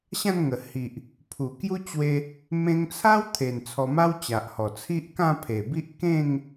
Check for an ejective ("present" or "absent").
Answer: absent